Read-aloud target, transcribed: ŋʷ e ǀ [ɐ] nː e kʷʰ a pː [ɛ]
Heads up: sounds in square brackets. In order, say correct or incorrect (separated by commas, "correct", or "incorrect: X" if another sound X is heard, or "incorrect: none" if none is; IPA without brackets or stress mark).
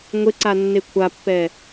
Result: incorrect: a, correct